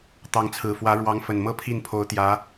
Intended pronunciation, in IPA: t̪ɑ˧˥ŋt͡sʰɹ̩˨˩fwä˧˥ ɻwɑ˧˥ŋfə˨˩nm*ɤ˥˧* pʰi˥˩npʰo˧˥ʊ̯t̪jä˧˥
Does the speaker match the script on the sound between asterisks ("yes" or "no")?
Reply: yes